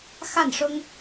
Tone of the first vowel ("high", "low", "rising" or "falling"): falling